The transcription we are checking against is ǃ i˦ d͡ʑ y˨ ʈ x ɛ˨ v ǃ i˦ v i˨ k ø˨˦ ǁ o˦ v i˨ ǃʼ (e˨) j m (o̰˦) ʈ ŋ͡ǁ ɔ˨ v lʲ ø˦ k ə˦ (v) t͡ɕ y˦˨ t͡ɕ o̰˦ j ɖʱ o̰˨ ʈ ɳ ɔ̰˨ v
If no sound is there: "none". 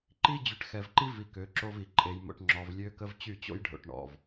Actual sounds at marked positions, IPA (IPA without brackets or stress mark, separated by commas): e˨, o̰˨, v